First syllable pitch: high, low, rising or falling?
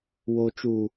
low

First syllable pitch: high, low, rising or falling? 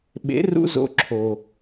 rising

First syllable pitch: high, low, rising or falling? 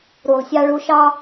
low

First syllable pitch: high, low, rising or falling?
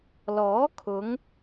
rising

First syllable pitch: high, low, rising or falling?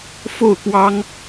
falling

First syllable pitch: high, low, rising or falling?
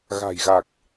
low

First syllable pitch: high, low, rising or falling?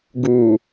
low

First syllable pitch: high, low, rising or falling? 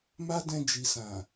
high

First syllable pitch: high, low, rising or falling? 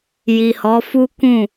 low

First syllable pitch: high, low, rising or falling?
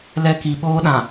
high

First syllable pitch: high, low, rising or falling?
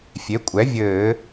rising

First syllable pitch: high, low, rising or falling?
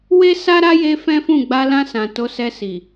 high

